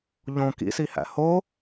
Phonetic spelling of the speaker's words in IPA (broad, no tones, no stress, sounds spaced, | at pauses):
ʎ õ k ḭ s i h æ̰ h o